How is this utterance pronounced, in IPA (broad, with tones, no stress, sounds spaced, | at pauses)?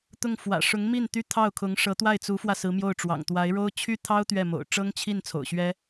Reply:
t̪ ʊ˥˩ ŋ f w ä̰˨˩ ʂ ʊ˧˥ ŋ m i˥˩ n t̪ y˥ t̪ʰ ɑ˥˩ ʊ̯ kʰ ʊ˧˥ ŋ ʂ ɤ˧˥ t̪ w a˥˩ ɪ̯ t͡s u˧˥ f w ä˧ s ɹ̩˧˥ m j o˥˩ ʊ̯ ʈ͡ʂ w ɑ̰˨˩ ŋ t̪ w a˧˥ ɪ̯ ɻ o˥ ʊ̯ t͡ɕʰ y˥ t̪ʰ ɑ˥ ʊ̯ t̪ ɥ ɛ˥˩ m o̰˨˩ ʊ̯ ʈ͡ʂ ɤ˥ ŋ t͡ɕʰ i˥˩ n t͡sʰ o̰˨˩ ʊ̯ ɕ ɥ ɛ˥